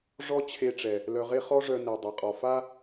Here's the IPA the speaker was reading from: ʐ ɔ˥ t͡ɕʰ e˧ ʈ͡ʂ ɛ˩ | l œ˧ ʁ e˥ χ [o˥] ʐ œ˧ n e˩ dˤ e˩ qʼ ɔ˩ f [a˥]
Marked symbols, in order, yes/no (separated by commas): no, yes